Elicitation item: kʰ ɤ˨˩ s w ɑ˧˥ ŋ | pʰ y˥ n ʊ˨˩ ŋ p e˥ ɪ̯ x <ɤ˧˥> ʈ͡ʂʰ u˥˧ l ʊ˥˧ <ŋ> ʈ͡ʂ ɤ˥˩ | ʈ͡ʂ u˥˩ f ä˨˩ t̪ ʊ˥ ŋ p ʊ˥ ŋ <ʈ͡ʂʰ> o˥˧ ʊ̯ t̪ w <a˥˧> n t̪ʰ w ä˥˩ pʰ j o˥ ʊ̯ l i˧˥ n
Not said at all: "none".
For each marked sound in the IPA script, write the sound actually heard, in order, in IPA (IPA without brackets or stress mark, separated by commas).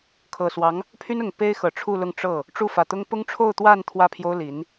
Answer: ɤ˨˩, ŋ, ʈ͡ʂʰ, a˥˧